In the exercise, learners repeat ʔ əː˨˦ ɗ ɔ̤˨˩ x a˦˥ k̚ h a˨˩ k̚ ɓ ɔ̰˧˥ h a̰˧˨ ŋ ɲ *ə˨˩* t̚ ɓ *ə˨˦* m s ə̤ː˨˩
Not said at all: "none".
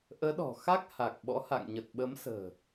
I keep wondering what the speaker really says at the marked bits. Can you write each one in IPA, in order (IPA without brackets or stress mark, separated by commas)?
ə˨˩, ə˨˦